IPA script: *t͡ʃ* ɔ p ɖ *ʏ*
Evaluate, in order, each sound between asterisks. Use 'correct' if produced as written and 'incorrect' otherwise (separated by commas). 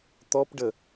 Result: incorrect, incorrect